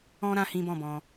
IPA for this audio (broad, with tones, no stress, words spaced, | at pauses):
ɔ̃˦ɾã˧ hĩ˦bɔ̃˦˨bɔ̃˧